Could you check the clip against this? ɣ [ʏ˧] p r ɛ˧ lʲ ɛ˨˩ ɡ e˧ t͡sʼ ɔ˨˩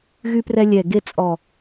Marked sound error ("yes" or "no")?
yes